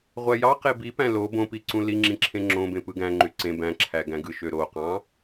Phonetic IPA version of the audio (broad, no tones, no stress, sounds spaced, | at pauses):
ʁʷ æ j ɑ q e b i p æ̃ l o b õ p i ǀ ũ l i ŋ͡ǁ ĩ ǁʰ ẽ ŋ͡ǁ õ b ẽ p ɯ ɡ æ̃ ŋ͡ǃ y ǀ ẽ b æ̃ ǁʰ æ ɡ æ̃ ɡ ɯ ʃ ø ɾ o q ɑ̃